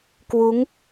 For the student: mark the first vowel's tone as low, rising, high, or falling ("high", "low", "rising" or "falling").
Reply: rising